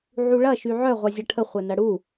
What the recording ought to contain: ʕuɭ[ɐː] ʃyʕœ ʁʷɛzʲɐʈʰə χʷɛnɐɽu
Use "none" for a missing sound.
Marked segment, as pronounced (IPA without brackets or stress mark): ɐ